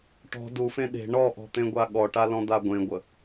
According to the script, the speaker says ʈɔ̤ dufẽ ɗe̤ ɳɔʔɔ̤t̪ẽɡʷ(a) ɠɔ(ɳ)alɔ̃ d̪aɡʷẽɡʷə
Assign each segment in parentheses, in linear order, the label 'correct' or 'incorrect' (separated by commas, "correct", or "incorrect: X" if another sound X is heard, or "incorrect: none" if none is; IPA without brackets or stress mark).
correct, incorrect: ʈ